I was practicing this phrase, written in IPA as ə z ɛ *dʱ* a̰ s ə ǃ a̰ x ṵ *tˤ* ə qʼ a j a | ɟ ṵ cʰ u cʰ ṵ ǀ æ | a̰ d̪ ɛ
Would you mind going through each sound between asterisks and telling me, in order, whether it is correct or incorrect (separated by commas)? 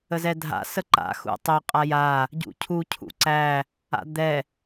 correct, correct